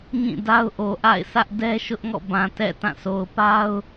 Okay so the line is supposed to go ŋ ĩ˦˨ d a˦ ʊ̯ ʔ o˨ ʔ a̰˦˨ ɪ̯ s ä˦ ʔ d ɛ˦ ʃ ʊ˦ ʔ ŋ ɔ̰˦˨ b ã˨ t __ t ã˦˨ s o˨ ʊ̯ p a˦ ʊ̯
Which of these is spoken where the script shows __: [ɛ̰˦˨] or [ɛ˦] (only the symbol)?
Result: ɛ̰˦˨